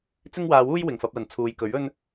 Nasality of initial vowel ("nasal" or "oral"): oral